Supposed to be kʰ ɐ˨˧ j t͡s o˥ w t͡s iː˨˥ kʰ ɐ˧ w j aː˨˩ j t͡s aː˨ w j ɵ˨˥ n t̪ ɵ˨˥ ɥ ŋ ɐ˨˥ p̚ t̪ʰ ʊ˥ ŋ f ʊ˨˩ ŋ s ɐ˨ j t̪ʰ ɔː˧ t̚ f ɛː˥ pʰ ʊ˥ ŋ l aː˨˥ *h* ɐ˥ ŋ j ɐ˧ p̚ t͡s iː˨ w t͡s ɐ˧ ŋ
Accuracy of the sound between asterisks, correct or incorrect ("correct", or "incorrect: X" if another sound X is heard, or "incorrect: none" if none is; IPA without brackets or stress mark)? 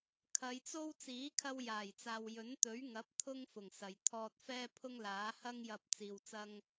correct